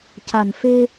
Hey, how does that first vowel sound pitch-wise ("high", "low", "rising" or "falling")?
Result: low